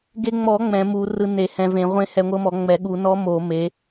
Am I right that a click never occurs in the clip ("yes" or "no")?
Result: yes